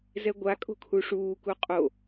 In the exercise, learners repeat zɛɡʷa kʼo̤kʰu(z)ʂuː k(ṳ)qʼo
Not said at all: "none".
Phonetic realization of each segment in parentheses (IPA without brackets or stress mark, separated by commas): none, u